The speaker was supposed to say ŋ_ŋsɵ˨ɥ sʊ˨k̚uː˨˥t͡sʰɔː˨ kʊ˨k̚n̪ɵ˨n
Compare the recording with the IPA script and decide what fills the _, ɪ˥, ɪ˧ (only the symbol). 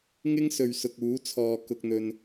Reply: ɪ˥